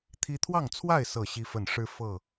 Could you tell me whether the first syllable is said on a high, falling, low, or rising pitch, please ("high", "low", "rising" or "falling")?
high